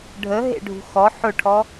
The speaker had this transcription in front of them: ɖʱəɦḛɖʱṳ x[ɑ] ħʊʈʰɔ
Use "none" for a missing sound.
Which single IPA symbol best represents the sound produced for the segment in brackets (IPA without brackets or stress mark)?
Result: ɔ